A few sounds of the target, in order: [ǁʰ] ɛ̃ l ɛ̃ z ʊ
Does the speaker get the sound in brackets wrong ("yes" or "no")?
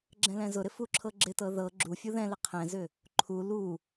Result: yes